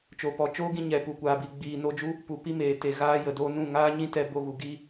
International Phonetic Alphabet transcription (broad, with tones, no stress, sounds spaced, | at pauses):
t͡ʃ o˨ p ɔ˨ t͡ʃ oː˦ ɡ ĩ˧ ɲ ɛ˨ p u˨ kʷ aː˨ b i˨ ɡ͡b iː˨ n o˧ d͡ʒ u˦ | p u˨ p i˦ m eː˨ t e˨ ɣ aː˦ j ə˨ d o˦ n ũ˦˨ ŋ aː˦ ɲ ĩ˦ t ɛ˧ b o˧ ɣ u˨ ɡ i˦